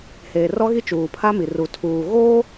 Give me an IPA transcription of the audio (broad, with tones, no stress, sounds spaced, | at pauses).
h eː˨ r ɔ˦ ɣ i˦ t͡ʃ uː˨ pʰ a˦ m i˨ r u˨ tʰ uː˨ ɣ oː˦